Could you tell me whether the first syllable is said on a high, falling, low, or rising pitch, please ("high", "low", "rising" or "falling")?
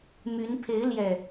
rising